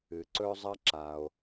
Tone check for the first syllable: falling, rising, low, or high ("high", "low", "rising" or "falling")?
low